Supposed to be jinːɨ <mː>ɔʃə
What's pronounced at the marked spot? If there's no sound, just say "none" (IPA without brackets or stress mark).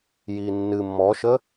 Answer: mː